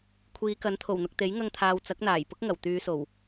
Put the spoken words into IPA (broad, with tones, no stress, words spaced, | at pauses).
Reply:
kʷʰiː˨˧ kɐ˨˥nt̪ʰo˨˩wn̪ʊ˨k̚t̪e˨˥j ŋɐ˧ŋt̪ʰaː˨w t͡sɐ˨˥k̚n̪aː˨˩jpʊ˥k̚ ŋɐ˨˩wt̪yː˨˧so˨˩w